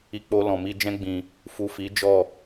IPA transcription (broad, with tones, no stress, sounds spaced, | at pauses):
i˨ k͡p o˨ l ɔ̃˨ m i˧ d͡ʒ ɛ̃˦ ɡ͡b ĩ˧ | f u˨ f i˨˦ d͡ʒ ɔ˦˨